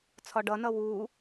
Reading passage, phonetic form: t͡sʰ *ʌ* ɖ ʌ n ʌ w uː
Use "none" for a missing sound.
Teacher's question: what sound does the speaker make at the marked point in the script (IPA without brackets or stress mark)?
ɒ